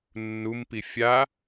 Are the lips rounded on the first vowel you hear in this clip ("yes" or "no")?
yes